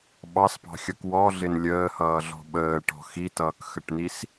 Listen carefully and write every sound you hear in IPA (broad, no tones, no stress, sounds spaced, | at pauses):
ɓ ɑ s p ɑ̤ xʲ ʌ k w ɔ ɮ ɪ n lʲ əː h ʌː ɮ ɔ̤ ɓ əː ʈ ɔ̤ x i t ʌː k x ə ʈ n i s